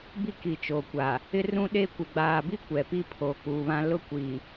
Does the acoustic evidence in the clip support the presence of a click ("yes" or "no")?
no